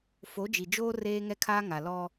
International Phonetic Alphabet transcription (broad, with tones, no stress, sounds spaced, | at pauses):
f o˨˦ d͡ʒ i˨ d͡ʒ oː˦ r eː˦ ŋ ɛ˦ kʰ aː˦ ŋ a˨ l ɔ˦